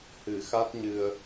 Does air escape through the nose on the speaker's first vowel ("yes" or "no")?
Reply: no